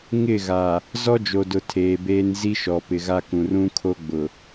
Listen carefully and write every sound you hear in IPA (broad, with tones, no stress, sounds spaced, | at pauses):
ŋ ɪ˦˨ ɣ a˨ | z ɔ˦ d͡ʒ o˨ d ʊ˨ tʰ eː˨ b eː˦ n z i˦ ʃ ɔ˨ p ɪ˨ ɣ a˦ k ũ˨ r ũ˦ kʰ o˦ ɡ͡b ʊ˨